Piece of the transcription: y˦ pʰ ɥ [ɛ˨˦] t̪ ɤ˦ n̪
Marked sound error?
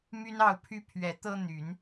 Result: no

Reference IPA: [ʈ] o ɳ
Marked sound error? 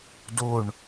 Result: yes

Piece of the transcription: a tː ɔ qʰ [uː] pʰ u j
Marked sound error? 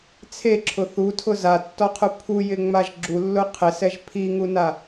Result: yes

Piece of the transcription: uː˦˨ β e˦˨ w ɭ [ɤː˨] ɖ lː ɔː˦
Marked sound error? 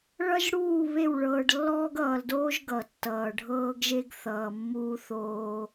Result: no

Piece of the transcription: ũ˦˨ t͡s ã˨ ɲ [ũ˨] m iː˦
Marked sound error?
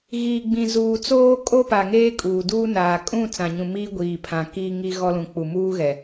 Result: no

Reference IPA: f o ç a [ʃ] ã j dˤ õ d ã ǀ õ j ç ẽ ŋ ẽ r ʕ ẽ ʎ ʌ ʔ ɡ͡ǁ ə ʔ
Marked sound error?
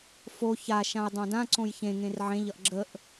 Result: no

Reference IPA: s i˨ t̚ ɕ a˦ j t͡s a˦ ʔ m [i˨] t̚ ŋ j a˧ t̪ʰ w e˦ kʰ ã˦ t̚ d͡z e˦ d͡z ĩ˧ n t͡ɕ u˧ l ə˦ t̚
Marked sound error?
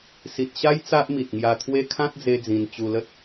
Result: no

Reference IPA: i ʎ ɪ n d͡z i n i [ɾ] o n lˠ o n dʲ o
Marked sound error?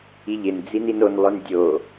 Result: yes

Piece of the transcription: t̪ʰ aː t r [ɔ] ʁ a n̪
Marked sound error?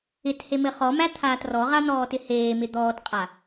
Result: no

